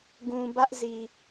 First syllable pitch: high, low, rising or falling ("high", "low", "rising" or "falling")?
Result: low